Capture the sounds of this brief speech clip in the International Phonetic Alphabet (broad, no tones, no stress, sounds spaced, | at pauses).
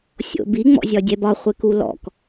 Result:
sʲ o̰ b i ŋ͡m ɔ̰ zʲ ɒ dʲ ɛ b ɒ χʷ e k u l ɔ̰ k